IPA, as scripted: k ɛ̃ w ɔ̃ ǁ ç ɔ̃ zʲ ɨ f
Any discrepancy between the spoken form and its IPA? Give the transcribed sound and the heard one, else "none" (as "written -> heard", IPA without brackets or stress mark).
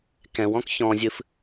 ǁ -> k